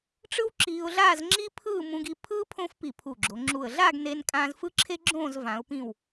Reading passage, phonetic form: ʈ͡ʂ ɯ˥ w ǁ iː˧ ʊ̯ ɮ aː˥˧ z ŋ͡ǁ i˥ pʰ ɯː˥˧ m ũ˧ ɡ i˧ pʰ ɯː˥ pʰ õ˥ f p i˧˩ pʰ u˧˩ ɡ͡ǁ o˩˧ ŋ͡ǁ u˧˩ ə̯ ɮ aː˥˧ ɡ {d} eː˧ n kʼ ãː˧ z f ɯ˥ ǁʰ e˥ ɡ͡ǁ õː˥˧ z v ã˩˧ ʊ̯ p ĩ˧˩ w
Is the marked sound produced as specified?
no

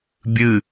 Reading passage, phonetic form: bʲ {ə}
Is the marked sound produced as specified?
no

